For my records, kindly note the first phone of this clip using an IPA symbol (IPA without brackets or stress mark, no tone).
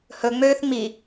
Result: h